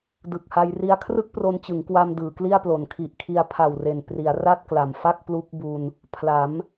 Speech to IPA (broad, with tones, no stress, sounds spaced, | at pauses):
d ɯ˨˩ k̚ h a˧ j r i˦˥ a̯ kʰ r ɯ˥˩ k̚ p r o˧ n t͡ɕ ɯ˩˦ ŋ k w a˧ m d ɯː˩˦ k l i˥˩ a̯ p l o˨˩ n kʰ i˨˩ ʔ kʰ i˧ a̯ pʰ a˨˩ w r e˨˩ n p r i˩˦ a̯ r a˥˩ t̚ k l a˩˦ m f a˥˩ k̚ p l u˦˥ k̚ b u˧ n | pʰ l a˩˦ m